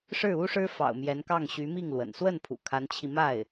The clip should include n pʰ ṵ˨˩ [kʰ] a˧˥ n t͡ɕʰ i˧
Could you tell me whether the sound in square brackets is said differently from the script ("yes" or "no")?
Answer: no